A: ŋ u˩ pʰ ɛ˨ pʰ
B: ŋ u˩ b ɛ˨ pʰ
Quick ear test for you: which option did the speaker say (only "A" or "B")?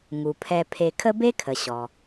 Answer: A